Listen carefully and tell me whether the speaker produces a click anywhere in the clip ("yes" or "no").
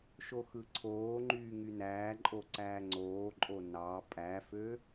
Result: yes